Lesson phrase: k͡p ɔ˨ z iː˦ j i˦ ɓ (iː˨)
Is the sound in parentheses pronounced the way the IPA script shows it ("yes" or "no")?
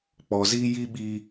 no